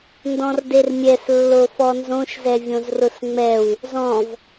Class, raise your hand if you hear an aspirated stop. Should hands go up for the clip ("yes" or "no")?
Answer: no